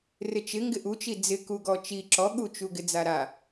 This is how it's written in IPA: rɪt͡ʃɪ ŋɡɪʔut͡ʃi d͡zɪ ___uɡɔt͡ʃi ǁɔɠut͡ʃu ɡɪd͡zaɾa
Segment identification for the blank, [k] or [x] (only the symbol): k